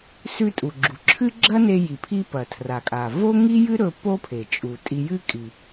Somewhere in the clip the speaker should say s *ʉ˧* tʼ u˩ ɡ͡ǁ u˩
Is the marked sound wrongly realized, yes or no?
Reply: no